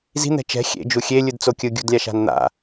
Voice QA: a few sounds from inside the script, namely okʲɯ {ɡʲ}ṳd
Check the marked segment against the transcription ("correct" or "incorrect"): correct